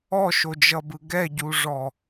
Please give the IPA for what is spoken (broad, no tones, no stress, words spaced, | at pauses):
ɔʃod͡ʒʌbɯ ɡɛɟuʐɔ